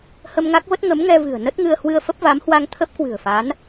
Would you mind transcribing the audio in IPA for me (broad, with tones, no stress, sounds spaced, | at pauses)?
h ə˧ m ŋ a˦˥ k̚ v ə˦˥ t̚ ŋ ə˨˦ m ŋ ɛ˧ v ɨ̤˨˩ ə̯ n ə˦˥ t̚ ŋ ɨ˧ ə̯ h w ɨ˧ ə̯ f ə˦˥ p̚ v a˨˦ m h w a˧ ŋ t̪ʰ ə˦˥ p̚ k w ɨ̤˨˩ ə̯ f a˨˦ n